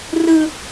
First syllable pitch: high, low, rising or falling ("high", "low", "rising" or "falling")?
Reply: high